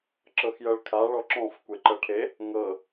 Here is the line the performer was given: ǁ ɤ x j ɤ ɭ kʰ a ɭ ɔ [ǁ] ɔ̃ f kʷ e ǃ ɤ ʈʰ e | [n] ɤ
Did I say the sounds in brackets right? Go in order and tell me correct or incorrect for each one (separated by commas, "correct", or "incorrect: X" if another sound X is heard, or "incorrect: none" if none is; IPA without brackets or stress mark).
correct, incorrect: ŋ